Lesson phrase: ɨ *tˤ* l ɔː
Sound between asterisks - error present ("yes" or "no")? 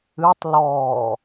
no